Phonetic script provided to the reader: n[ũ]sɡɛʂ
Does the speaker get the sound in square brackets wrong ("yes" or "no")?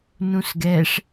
no